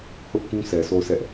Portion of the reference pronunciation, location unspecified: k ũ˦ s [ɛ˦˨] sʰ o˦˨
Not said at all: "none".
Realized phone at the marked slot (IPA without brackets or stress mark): ɛ˨